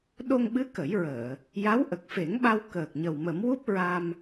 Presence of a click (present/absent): absent